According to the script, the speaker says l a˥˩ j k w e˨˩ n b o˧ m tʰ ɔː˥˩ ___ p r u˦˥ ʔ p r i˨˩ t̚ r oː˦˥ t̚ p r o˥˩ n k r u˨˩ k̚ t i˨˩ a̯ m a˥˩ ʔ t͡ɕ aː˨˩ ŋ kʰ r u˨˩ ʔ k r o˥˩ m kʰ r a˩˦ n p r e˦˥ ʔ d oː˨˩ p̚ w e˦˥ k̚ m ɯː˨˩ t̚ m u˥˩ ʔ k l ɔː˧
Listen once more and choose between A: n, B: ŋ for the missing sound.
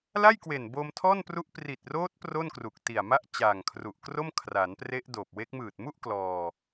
A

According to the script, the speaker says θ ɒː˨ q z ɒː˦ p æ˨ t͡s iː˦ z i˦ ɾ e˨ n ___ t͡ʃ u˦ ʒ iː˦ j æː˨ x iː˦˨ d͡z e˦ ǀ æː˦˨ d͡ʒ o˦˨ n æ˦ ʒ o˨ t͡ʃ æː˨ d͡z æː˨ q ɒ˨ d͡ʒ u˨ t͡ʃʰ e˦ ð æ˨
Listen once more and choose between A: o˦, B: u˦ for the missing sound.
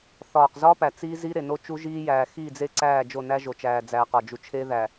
A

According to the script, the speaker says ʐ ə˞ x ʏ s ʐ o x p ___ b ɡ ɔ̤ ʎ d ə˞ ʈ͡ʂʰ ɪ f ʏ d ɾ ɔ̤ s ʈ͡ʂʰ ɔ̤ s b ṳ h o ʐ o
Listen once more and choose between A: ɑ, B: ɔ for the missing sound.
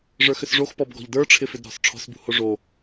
B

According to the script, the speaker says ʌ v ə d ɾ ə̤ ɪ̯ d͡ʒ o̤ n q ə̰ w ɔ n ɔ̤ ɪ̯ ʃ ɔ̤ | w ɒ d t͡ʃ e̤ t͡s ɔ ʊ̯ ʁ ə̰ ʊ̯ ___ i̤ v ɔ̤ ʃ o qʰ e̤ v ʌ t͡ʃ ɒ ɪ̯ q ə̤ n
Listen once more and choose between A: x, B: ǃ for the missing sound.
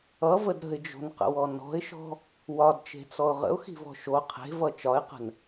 A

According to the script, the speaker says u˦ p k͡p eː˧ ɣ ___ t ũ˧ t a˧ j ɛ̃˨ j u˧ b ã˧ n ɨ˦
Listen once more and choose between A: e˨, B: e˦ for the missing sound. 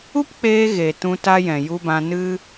A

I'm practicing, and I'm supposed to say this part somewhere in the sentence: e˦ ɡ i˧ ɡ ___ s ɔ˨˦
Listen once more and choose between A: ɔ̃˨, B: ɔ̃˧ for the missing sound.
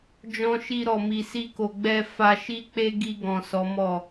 A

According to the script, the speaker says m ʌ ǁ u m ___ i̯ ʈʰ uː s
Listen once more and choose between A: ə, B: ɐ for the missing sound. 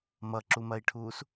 B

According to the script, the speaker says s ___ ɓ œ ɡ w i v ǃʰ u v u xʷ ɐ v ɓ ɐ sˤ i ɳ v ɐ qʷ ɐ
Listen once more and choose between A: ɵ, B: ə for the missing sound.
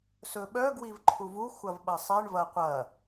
A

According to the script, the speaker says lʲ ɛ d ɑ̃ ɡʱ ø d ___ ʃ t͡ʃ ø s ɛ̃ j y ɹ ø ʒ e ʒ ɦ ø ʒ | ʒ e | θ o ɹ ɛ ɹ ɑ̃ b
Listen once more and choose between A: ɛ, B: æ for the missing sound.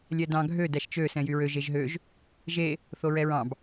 B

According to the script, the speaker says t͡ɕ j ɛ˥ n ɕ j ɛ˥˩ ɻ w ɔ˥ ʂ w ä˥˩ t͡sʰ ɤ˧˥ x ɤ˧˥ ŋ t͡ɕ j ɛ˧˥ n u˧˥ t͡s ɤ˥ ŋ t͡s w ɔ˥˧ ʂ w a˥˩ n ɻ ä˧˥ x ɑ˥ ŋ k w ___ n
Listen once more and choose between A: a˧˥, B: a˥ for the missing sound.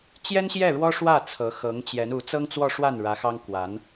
A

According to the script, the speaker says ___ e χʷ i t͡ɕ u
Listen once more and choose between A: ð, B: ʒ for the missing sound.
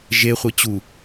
B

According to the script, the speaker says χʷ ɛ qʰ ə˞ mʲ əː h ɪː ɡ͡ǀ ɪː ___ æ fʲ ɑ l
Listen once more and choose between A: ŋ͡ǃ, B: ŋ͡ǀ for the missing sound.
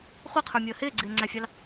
B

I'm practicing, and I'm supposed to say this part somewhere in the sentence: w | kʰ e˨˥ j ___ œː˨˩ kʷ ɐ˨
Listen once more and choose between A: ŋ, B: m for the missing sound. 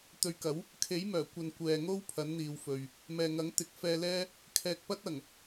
B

